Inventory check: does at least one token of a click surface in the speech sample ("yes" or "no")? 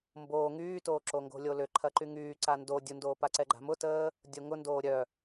yes